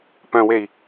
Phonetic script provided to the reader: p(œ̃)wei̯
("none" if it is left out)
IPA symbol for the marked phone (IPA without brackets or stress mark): œ̃